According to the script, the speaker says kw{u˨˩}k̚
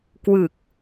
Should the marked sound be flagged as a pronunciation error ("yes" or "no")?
yes